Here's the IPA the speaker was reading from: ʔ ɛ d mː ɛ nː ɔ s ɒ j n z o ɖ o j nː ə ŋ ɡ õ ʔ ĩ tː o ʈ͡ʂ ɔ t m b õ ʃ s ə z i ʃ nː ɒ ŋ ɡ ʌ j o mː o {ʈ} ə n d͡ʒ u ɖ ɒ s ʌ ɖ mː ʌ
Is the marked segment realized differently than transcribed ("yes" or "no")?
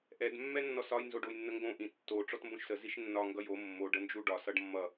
yes